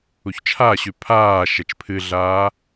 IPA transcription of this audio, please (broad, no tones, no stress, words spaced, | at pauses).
uçt͡ʃʰaɕʉ pʰaː ʃɛt͡ʃpʰɨɮaː